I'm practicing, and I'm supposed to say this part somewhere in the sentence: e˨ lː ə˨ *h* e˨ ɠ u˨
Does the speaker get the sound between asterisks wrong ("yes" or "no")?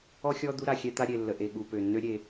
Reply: yes